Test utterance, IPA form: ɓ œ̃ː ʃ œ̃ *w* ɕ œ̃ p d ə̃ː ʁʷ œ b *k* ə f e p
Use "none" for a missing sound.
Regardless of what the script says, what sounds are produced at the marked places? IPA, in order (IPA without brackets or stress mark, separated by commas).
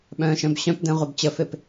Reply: b, t͡ɕ